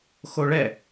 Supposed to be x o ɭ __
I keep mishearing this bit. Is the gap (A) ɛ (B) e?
A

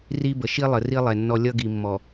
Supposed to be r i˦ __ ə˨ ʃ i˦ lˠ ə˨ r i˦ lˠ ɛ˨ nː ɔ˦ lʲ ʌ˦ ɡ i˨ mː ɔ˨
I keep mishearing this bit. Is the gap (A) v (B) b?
B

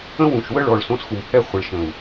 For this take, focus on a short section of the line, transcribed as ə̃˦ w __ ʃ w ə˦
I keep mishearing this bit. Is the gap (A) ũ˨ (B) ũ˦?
A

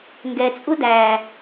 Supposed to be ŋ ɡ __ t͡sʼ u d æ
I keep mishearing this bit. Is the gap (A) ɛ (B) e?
A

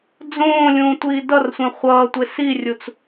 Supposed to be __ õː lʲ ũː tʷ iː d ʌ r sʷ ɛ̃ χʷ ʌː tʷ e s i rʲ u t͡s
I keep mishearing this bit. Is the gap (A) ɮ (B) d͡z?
B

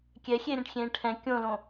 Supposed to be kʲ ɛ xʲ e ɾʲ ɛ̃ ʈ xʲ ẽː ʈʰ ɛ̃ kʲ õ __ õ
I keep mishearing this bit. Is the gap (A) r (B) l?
B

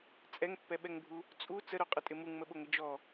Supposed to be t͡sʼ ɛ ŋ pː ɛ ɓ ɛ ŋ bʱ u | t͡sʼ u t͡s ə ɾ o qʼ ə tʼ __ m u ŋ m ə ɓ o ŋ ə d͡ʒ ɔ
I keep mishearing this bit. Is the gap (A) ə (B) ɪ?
B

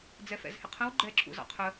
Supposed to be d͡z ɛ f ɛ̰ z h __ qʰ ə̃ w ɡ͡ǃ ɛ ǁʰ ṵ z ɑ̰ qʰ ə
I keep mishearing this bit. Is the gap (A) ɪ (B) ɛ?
A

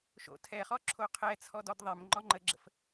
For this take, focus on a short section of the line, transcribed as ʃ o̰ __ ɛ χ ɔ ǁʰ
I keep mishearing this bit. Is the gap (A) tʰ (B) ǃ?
A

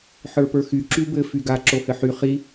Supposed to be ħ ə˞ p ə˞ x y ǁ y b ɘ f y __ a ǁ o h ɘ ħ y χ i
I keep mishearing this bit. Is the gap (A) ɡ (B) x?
A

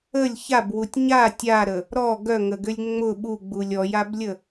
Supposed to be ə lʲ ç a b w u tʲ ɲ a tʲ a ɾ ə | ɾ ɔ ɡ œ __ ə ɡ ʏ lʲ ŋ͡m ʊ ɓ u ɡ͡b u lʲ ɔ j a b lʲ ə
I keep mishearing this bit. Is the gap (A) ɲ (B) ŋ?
B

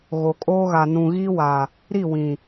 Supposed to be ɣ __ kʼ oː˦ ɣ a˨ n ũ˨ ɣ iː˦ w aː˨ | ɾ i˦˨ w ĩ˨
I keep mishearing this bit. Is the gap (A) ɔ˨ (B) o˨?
B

